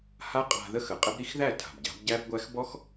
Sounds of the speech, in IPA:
h a˥ qʼ a̤˧ ð ə˥ x ə˩ qʼ ə˥ b ɾ i˥ x ð æ˥˩ tʰ a̤˩ b ɟ a̤˩˥ b ɟ æ˥ b ɡʷ æ˥ x b ɔ˥ x

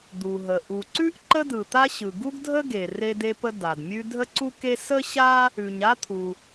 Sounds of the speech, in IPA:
d̪ u˩ ɦ ə˩ ʔ u˩ ǀ ʉ˥ ʔ ǃ ə˥ d ɯ˩ t̪ a˥ ɕ ɯ˩ ɡ u˥ ɡ dʱ ə˥ ɡ e˩ r e˥ d e˥ p ə˥ d a˩ d mʲ ʉ˥ dʱ ə˥ ǀ u˥ k e˥ s ə˥ ɕ a˥ | ʉ˩ ɲ a˥ t̪ʰ u˩

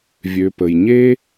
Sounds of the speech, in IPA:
vʲ ø˨ p ə˩ j ɲ e˥

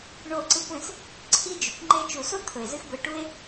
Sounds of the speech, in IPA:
ɳ o˦˨ ǀ ɨ˦ kʷ ẽ˧ s | ǀʰ i˦ d͡ʒ ʉ˨ kʷ ŋ͡ǃ e˦ t͡ʃ u˨ s o˦ t̪ʰ ɵ˨ e̯ z ɨ˦ x ɡʷ e˧ ʈ u˦ e̯

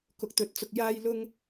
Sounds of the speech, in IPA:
k ʊ˨ k̚ t̪ ɵ˨ t̚ t͡s ʊ˨ k̚ j aː˧ j l ʊ˥ ŋ

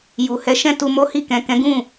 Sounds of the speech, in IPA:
j u˨ h ɛ˨˦ ʃ ɛ̃˧ t u˧ m o˦ h i˦˨ k ɛ̃˨ k ɛ̃˨˦ ɡ ũ˦˨

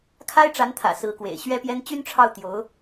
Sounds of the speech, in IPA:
kʰ a˥ ɪ̯ ʈ͡ʂ a˧˥ n t̪ʰ ä̰˨˩ s ɹ̩˧˥ k w ḛ˨˩ ɪ̯ ɕ ɥ ɛ˥ p j ɛ˥ n t͡ɕ y˥ n ʈ͡ʂʰ ɑ˥˩ ʊ̯ t̪ j o˧˥ ʊ̯

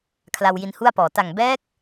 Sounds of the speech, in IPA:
kʰ l a˧ w j i˧ n h u˥˩ a̯ p ɔː˨˩ t a˨˩ ŋ b ɛː˦˥ k̚

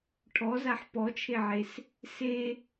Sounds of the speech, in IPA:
ʈʰ ɔ z a ħ p ɔ t͡ʃʰ e ʕ e s | s e

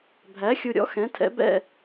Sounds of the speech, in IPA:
bʱ æ˩˥ xʲ u˨ ɾʲ ɔ̰˩˥ x ɛ̃˩˥ tʰ ɛ̰˩˥ b ɛ̰˥˨

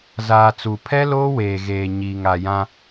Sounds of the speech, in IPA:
z aː˨ t͡s u˨ pʰ ɛ˦ l oː˦ w eː˨ ɣ eː˨ ɲ iː˨ ŋ a˨ j ã˦

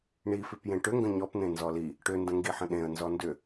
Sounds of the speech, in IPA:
ɳ i f i p j ẽ ʈ ʏ ŋ ɡ ə̃ ɲ ɔ p n̪ ẽ n z ɔ l i | ʈ ʏ n d ə̃ ŋ ɡ i ħ ə̃ ɗ ẽ ə̯ n z ɔ n d ʏ

